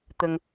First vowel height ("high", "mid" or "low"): mid